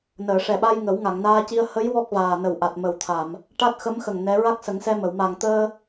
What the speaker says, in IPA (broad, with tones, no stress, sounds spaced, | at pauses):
n əː˨˩˨ ʂ ɛ˨˩ ɓ a˧ j ŋ ə˨˩˦ w ŋ a˨˩˨ ŋ n aː˧ c i˧ ə̯ h ə˧˥ j w ɔ˦˥ k̚ v aː˨˩ n ə˨˩ w ʔ a˨˩ t̚ m ə˨˩ w t̪ʰ a˨˩˨ m | ʈ a˦˥ t̚ x ə˧˥ m x ə˨˩ ŋ n ɛ˧˥ ɹ a˦˥ k̚ s ə˨˩˦ ŋ s ɛ˧ m ə˨˩˨ w m a˨˩ ŋ t̪ əː˧